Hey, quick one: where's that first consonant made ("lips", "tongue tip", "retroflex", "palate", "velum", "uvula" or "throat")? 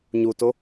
palate